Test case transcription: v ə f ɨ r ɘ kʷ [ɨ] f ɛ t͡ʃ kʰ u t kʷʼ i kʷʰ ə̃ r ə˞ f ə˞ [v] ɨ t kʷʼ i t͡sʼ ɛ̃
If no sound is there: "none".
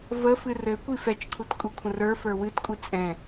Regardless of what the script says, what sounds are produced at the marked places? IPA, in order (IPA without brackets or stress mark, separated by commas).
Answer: i, w